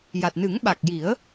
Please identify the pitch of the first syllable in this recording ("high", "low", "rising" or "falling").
low